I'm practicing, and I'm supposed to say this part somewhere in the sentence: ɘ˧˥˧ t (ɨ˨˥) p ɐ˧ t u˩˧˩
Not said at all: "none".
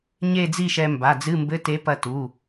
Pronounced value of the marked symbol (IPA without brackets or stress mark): e˨˥